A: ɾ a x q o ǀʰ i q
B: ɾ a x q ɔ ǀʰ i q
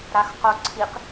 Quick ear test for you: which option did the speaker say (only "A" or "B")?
A